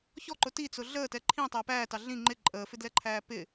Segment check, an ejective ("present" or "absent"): present